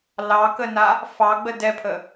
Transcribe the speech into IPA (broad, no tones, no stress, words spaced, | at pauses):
lɑkəna | fɑɡ͡bə dɛpʰə